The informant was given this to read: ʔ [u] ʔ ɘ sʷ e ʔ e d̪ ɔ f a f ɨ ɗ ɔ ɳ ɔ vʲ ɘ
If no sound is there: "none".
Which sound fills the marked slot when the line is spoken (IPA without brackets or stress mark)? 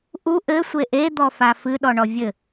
u